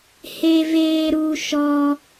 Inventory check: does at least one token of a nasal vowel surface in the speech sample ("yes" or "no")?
no